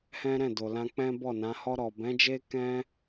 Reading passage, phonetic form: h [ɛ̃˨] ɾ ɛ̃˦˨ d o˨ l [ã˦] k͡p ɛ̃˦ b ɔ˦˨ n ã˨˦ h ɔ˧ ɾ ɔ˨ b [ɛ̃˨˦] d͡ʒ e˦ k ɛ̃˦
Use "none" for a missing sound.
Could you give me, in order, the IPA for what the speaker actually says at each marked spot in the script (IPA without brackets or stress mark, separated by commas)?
ɛ̃˦, ã˧, ɛ̃˨˦